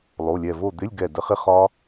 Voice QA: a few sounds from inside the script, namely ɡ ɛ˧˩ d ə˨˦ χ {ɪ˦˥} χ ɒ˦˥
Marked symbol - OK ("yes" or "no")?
yes